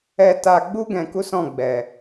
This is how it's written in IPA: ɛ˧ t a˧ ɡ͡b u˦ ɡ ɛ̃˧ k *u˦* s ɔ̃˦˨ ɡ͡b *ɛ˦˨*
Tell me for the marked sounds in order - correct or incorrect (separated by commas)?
correct, incorrect